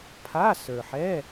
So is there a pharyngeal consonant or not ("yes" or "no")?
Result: yes